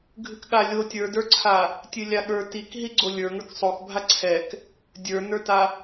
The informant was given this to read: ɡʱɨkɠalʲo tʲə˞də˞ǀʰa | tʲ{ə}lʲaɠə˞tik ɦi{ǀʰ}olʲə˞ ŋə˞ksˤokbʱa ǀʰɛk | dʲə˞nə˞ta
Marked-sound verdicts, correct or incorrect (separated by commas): incorrect, incorrect